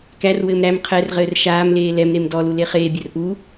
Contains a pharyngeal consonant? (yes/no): no